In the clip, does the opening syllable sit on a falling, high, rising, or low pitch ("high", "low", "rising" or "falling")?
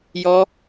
high